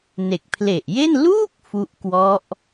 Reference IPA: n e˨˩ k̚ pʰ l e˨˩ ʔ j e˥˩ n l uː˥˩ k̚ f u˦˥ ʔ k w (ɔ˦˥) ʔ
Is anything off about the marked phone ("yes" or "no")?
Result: no